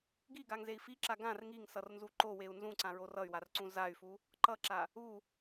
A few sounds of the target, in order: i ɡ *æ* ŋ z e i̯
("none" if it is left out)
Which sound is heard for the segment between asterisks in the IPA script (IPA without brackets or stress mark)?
a